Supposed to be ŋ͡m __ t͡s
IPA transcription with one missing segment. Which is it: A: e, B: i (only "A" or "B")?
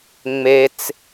A